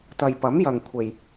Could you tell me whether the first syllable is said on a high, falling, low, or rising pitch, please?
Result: low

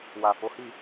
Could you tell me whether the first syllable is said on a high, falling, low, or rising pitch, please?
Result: low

